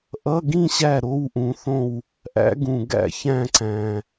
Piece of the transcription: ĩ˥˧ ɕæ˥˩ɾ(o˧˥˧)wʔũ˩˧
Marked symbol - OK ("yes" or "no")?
yes